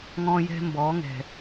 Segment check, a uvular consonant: absent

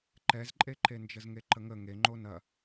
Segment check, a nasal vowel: absent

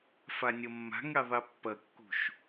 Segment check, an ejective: absent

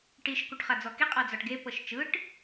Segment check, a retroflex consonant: present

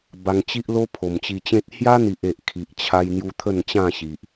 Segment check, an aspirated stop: present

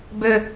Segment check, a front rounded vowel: present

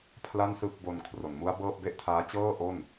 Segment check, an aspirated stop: present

